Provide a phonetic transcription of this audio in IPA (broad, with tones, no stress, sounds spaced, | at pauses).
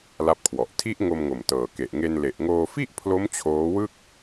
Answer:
l a˦˥ p̚ kʰ w ɔ˨˩ ʔ tʰ i˦˥ ʔ ŋ o˧ m ŋ o˨˩ m t ɤː˨˩ k e˨˩ ʔ ŋ e˧ n l e˨˩ ʔ ŋ oː˧ f i˥˩ ʔ pʰ l o˦˥ m t͡ɕʰ oː˦˥ w ɯ˥˩ k̚